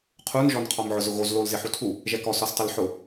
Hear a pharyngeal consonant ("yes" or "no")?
yes